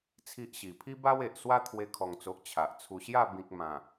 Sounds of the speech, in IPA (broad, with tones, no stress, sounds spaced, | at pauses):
t͡sʰ i˦ ʔ ɕ i˨˩ pʰ i˦ b a˦ w e˨ ʔ s w a˦ t̪ʰ w e˧ kʰ ɔ˨˩ ŋ t͡s o˨ ʔ t͡ɕʰ a˨ ʔ t͡sʰ u˧ ɕ j a˥˧ b ĩ˨ k̚ m ã˨˩